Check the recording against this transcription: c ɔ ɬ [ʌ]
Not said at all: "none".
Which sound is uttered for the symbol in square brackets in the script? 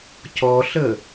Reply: ə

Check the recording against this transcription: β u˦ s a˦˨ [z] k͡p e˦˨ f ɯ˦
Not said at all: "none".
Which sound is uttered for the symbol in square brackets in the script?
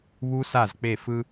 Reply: z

